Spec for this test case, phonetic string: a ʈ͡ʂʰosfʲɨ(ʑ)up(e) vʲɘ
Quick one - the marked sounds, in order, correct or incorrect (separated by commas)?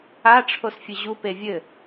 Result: correct, correct